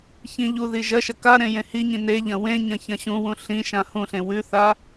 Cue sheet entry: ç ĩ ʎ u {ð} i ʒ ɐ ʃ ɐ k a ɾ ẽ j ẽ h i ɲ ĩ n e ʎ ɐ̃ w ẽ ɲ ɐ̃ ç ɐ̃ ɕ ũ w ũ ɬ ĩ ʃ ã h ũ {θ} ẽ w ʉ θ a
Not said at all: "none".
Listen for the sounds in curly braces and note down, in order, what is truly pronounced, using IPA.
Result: ð, ɬ

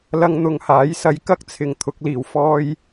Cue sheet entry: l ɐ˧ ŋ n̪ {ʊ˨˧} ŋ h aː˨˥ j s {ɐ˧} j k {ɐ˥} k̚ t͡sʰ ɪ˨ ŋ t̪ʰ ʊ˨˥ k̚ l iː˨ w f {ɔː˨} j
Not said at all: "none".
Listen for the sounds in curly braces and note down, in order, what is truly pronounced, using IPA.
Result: ʊ˨˧, ɐ˧, ɐ˥, ɔː˥

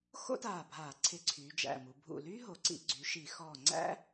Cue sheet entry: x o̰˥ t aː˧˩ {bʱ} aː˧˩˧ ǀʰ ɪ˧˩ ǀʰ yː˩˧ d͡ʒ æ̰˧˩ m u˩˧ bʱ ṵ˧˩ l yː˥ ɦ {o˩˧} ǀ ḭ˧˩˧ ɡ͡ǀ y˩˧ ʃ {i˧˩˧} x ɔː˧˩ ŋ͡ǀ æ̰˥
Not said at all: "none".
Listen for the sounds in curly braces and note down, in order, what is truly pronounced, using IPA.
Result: bʱ, o˩˧, i˧˩˧

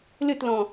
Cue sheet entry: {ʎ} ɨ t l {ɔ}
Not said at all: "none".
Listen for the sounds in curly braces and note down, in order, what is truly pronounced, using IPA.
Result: l, ɔ̃

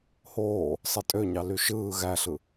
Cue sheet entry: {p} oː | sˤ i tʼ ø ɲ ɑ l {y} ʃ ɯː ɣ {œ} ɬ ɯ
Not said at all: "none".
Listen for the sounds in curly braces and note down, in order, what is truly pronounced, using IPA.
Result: h, y, æ

